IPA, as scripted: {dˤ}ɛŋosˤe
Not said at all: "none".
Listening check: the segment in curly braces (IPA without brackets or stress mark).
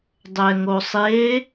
dˤ